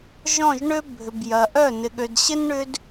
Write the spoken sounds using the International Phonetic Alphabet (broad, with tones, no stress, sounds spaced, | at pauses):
ʒ ɔ̃˦˨ ʒ ɳ ø˦ bʱ ʏ˨ b j ɐ˨ ʔ œ˦˨ n ɪ˨ ɠ ø˨ d ɕ ɪ˦ n ɳ ʏ˦ d